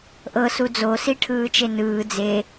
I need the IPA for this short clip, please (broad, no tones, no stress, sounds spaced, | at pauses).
ʔ ɤ s u d͡z o s i ʈʰ ɯː t͡ʃ e n ɯː d͡z e